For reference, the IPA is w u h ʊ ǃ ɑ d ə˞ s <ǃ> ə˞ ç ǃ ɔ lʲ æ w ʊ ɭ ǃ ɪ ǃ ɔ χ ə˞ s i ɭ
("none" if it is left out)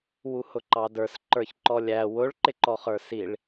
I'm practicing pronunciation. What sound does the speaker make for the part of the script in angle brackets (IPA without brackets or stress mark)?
ǃ